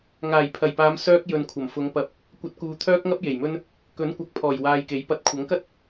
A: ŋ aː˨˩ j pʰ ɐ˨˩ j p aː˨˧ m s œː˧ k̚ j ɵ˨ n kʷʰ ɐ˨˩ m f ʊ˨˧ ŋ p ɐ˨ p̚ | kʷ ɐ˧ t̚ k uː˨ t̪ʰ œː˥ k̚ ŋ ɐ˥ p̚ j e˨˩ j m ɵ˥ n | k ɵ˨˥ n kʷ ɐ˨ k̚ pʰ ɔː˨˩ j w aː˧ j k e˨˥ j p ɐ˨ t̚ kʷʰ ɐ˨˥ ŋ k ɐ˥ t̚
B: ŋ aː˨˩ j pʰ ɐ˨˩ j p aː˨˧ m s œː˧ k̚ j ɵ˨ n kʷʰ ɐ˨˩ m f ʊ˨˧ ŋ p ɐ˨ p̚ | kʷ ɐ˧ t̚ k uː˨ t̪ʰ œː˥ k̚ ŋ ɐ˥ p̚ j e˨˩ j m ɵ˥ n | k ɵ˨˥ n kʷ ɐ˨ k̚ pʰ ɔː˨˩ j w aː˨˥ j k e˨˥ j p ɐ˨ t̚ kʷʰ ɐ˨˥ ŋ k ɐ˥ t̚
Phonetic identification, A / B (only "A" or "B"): A